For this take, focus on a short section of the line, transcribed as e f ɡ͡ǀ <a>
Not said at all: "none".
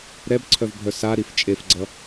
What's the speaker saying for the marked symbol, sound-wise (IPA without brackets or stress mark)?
ʌ